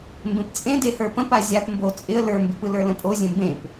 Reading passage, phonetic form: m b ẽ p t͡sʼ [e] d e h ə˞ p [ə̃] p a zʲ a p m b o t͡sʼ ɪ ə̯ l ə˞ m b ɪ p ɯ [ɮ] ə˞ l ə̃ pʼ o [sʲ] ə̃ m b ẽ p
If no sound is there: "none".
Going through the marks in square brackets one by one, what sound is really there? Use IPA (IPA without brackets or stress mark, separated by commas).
ẽ, ə̃, l, zʲ